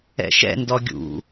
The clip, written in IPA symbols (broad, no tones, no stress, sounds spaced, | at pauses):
ɛ̰ ʃ ɛ̰ n d ɔ ɡʲ ṵ